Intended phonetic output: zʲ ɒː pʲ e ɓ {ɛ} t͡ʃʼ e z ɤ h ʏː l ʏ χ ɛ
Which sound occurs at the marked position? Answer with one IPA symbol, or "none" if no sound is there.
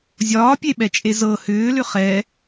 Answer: ɛ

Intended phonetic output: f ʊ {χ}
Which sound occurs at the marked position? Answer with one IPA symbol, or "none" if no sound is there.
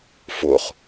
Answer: χ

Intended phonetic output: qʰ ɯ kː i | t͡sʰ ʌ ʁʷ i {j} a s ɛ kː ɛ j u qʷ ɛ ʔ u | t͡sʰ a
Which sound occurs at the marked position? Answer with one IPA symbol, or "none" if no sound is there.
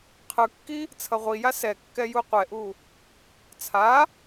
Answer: j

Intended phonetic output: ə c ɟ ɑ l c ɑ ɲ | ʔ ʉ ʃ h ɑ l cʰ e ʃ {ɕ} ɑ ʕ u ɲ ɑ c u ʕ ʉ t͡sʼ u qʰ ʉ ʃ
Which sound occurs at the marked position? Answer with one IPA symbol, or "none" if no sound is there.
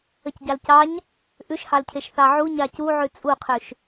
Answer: θ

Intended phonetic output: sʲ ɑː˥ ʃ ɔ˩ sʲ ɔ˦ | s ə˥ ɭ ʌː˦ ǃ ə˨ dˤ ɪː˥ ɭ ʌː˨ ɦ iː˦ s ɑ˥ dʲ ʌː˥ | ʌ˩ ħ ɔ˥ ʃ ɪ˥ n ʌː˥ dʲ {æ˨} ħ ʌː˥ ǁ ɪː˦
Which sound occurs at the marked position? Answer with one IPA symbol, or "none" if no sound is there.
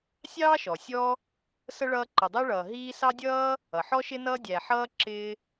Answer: æ˨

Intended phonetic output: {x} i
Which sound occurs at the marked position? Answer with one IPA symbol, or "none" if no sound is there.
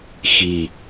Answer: x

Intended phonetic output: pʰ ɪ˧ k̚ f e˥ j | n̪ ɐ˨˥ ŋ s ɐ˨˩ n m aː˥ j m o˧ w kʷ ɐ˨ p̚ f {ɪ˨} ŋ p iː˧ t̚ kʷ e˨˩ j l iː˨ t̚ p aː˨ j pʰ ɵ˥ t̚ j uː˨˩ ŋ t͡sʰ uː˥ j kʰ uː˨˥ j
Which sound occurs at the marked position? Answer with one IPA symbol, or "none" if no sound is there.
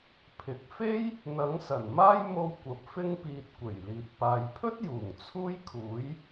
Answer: ɪ˥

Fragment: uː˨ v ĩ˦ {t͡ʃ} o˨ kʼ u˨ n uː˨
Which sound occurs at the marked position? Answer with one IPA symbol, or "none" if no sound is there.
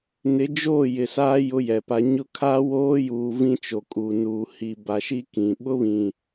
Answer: t͡ʃ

